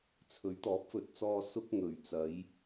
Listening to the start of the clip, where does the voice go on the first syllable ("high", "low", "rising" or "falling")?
rising